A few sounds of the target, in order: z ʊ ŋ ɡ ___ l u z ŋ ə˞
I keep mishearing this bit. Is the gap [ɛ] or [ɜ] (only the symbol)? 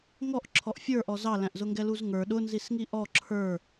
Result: ɛ